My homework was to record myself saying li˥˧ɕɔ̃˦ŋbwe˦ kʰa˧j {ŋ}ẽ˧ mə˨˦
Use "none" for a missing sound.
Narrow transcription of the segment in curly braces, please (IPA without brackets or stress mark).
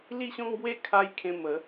kʰ